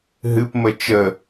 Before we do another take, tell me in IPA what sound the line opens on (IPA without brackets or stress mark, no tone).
ɦ